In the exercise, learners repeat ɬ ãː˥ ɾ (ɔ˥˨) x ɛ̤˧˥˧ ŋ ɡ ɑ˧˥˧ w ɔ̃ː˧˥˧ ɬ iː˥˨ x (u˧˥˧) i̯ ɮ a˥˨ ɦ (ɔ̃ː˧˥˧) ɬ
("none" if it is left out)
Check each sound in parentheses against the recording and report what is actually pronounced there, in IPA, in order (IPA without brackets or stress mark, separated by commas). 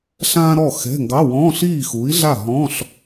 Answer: ɔ˥˨, u˨˥, ɔ̃ː˧˥˧